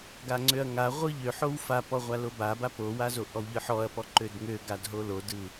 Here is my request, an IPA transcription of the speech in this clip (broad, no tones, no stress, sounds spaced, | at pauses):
ɡ a ŋ͡ǀ ø ɐ̯ ŋ a ʁʷ ɯ ʎ ø ħ o w f a p ɔ ʁʷ a l o b a b a p o w a z o ʔ ɔ w ʎ ɯ ħ ɔ ɐ̯ p ɔ ǃ ø d ŋ ø ɡ a d ɦ o l o d ɯ